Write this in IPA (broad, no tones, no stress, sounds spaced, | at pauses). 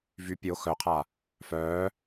v y pʲ o x œ qʰ a | f œː